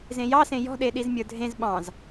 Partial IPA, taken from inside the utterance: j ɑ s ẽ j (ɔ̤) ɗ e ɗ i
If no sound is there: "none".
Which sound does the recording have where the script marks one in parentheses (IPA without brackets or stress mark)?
ɔ̤